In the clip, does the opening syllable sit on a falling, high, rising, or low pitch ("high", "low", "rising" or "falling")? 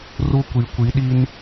high